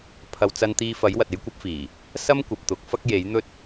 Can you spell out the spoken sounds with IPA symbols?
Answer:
pʰ ɐ˨ w t͡s ɐ˧ n t̪ iː˧ f ɐ˨˥ j w ɐ˨ t̚ e˥ j kʷ ɐ˥ p̚ f iː˨˩ | s ɐ˥ m kʷ ɐ˨ p̚ t̪ ʊ˨˥ k̚ f ɐ˥ k̚ j e˨˥ j n̪ ɵ˥ t̚

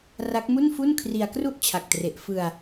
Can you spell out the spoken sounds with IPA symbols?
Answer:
r a˦˥ k̚ m u˥˩ n f u˥˩ n kʰ r i˧ a̯ k r u˥˩ ʔ t͡ɕʰ a˨˩ k̚ t r e˨˩ ʔ f ɯ˧ a̯

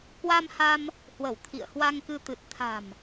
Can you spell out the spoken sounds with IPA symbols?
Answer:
k w a˧ m h a˧ m | h w ə˧˩ w t̪ʰ ḭ˧˨ ə̯ h w a˧ ŋ k ɨ˧ t̪ ɨ˨˩ t̚ t̪ʰ a̤˨˩ m

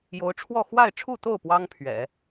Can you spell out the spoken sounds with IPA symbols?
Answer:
j o˧˥ ʊ̯ ʈ͡ʂʰ w ɔ˥˧ x w a˥˧ ɪ̯ ʈ͡ʂʰ u˥˧ t̪ o˥˩ ʊ̯ p w ɑ˥ ŋ pʰ ɥ ɛ̰˨˩˦

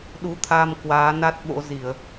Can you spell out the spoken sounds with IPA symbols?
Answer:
ɗ u˨˦ t̪ʰ a˧ m k w aː˨˦ n a˦˥ t̚ ɓ o̰˧˥ z i˧˩˨ ə̯

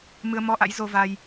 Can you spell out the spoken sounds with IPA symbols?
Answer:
m ɨ˧ ə̯ m ɔ˧ ʔ a̰˧˥ j z o˧ v a˧ j

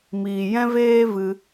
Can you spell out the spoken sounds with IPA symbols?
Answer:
m iː˨ j ɛ̃˦ v eː˦ v ɨ˧

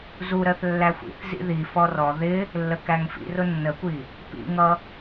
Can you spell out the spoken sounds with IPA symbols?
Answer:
z u ɾ ɜ θ lː æ xʷ ḭ θ z ḭ ð i f ɔ r ɔ ð ɪ | lː ə k æ ŋ f ḭ r ʊ nː ə kʷ i | p ḭ ŋ ʌ

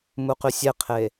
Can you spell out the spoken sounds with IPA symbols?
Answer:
m u q y sʲ e qʰ e

